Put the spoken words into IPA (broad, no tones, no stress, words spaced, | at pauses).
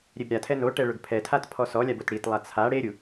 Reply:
ɾʲebɾʲatʰɛ noʈɛ ɭʊɡpʰɛtʰat pʰɔsɔlʲab otɽitlˠa t͡sʰa ɽeɾʲu